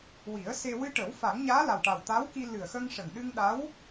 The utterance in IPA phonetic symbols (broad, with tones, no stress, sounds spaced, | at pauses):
w i˨˩˦ ə̯ s e˧ w ɨ˧ ʈ ə˨˩˦ w f a˨˩˦ ŋ ɲ aː˧˥ l a˨˩ w ʈ a˨˩ w t̪ a˧˥ w k i˧ l ɨ˨˩ ə̯ x ə˧ ŋ ʂ ə˨˩ ŋ ɗ ɨ˧ ŋ ɗ a˧˥ w